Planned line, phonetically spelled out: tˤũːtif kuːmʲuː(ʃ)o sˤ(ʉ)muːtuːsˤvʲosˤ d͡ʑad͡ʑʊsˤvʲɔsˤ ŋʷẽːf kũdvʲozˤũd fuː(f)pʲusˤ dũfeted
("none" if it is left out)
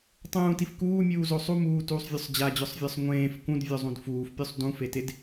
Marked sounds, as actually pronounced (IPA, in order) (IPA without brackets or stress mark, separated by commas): z, u, f